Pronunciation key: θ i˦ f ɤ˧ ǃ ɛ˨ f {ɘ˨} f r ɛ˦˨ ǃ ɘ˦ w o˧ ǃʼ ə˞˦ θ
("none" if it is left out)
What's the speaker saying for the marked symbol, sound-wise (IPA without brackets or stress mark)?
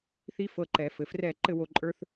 ɘ˨